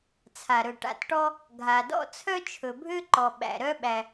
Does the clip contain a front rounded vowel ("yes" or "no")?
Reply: yes